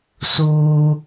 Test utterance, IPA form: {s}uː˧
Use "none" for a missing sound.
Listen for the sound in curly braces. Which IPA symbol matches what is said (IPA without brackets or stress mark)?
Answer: s